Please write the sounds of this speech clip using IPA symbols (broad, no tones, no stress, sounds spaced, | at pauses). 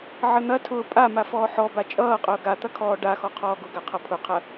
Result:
ʕ ə n̪ ɐ tʰ ʊː pʼ a m a f ɔː ħ ɔ b a t͡ʃʼ ʌː qʼ ʊː ɡ a t̪ ɐ kʰ ɔː ɖ a x ɔ qʰ ɔː ɡ ʊ ɡ a qʰ ʌ pʰ ʊ qʰ ɐ